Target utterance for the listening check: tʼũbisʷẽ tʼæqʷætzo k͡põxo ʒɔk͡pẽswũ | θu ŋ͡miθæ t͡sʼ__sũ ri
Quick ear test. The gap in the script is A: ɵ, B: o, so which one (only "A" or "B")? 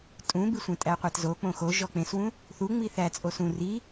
B